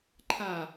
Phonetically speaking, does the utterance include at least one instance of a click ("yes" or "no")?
yes